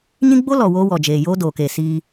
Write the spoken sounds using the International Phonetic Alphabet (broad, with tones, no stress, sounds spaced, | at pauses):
ɲ ĩ˦ ɡ͡b o˦ l ɔ˨ w oː˦ w ɔ˨ d͡ʒ eː˨ j oː˦ d oː˨ k eː˨ s iː˦